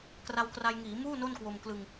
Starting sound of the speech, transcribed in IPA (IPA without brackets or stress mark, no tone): k